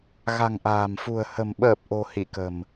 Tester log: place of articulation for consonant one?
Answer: velar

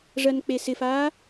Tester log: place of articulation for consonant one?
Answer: retroflex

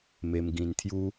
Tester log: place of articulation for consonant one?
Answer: labial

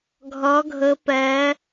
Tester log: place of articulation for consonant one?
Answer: velar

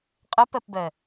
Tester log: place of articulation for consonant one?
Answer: uvular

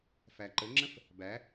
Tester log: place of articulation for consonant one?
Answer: labial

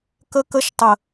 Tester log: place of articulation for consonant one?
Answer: velar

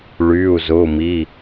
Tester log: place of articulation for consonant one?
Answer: retroflex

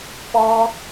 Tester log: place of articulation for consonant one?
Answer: labial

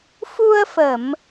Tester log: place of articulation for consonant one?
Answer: labial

